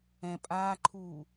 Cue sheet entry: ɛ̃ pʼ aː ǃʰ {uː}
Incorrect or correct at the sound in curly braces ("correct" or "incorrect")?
correct